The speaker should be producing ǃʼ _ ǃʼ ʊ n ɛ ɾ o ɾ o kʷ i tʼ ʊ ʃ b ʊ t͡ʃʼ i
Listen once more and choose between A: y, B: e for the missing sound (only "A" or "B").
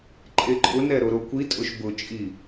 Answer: B